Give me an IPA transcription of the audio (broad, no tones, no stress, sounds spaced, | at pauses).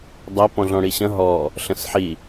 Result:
dˤ ɐ p ɔ̃ ɮ ɔ̃ ɽ i ɕ ɐ̃ ɦ ɔ | ɬ ə̃ s ħ i